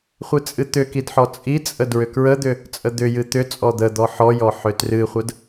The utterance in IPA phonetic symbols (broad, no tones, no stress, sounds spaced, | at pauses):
χʷ ɨ t͡sʼ ɨ t̪ ʏ k i d ħ ɔ t͡sʼ i t͡sʼ ə d ɹ ʏ k ɹ ə d̪ ʏ | t͡sʼ ə d̪ ʏ j ɨ t̪ ʏ t͡sʼ ɔ d̪ ə d̪ ɔ ħ ɔ j ɔ ħ ʏ t r ɨ χʷ ə d